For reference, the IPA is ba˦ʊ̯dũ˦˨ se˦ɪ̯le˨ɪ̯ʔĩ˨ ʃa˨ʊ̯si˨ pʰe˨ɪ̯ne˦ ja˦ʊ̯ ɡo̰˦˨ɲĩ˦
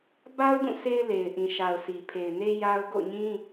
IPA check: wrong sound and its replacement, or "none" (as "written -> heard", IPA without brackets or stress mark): none